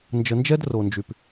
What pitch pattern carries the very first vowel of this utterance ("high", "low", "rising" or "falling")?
low